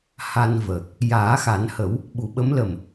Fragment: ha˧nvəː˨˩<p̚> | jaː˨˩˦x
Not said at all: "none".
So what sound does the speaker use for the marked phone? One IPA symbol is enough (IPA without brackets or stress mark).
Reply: k̚